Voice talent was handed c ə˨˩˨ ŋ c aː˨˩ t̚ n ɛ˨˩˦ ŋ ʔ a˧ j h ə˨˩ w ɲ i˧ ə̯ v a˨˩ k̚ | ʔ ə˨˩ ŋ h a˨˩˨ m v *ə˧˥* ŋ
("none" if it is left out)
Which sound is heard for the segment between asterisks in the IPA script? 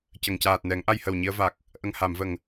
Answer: ə˨˩˨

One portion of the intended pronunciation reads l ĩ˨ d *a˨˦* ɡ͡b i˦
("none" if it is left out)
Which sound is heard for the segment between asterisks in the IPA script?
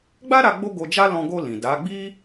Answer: a˨˦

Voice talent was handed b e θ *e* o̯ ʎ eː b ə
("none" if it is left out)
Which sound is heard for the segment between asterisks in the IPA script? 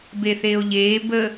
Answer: eː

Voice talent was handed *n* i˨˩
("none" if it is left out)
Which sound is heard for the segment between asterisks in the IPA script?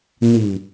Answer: n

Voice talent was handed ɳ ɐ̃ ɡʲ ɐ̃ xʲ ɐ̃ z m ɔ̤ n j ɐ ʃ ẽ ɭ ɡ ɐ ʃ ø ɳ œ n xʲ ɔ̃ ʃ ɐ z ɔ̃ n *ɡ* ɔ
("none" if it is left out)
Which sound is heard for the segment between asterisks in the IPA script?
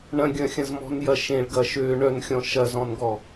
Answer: ɡ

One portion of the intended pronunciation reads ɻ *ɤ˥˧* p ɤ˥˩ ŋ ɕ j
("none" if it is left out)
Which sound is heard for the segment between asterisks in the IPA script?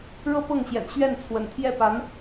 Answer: ɤ˥˧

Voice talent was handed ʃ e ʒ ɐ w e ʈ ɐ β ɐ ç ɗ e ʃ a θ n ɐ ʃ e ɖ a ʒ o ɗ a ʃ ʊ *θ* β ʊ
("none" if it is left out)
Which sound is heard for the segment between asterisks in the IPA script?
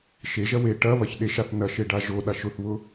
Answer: θ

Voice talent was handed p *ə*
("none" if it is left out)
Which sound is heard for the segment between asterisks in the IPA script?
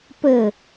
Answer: ə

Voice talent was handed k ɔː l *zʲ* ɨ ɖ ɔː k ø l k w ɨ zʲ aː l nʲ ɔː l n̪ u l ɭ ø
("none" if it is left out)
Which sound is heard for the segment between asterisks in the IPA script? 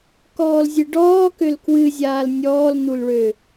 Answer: zʲ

